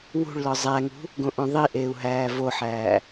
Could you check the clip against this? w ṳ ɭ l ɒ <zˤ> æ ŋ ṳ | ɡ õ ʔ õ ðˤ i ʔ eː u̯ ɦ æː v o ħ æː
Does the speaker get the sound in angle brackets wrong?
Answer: no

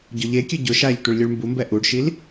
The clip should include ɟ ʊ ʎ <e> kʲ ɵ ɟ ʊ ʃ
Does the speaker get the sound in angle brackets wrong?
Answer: no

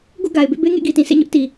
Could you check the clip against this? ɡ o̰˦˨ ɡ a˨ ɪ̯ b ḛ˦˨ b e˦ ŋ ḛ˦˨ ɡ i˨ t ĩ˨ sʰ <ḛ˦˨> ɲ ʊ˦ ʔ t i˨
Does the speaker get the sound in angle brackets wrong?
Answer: no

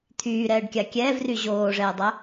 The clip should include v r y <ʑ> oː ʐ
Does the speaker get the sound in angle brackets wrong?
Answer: no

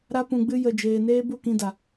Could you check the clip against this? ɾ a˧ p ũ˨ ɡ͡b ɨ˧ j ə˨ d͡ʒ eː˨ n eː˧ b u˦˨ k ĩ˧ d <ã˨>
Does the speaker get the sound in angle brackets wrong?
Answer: yes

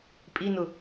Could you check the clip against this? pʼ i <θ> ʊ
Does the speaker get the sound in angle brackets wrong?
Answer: yes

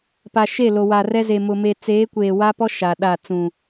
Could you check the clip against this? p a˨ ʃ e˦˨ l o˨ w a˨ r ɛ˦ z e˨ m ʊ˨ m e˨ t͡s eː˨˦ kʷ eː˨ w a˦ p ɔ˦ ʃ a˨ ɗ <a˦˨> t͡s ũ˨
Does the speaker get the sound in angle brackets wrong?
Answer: no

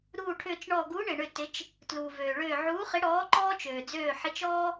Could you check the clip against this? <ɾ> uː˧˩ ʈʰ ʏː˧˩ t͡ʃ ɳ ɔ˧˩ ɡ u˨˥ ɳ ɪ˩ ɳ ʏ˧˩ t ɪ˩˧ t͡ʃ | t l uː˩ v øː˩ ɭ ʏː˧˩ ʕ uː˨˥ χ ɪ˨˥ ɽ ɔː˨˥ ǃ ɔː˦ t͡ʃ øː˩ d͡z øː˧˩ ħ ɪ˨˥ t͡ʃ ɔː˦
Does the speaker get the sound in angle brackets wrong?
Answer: no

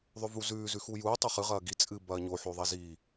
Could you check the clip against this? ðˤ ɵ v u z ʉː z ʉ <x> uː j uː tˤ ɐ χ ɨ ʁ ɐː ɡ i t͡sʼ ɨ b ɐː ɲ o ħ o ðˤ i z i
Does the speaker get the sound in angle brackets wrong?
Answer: no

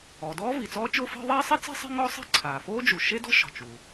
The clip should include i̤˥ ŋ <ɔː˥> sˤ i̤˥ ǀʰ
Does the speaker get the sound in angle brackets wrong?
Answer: yes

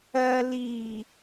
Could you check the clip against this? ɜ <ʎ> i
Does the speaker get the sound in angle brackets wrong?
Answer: yes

